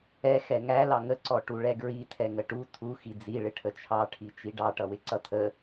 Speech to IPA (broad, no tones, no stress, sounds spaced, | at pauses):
ɛ x ɛ ŋ æ l ɑ ŋ ə ǀ ɔ ʈ u ɭ ɛ ɡ ɹ i tʰ ɛ ŋ ə ʈ u tʰ u x i d͡z i ɭ ɪ ʈʰ ə t͡ʃʰ ɑ ʈʰ i t͡ʃ i ɖ ɑ ʈ ʌ w ɪ ǀ ʌ tʰ ə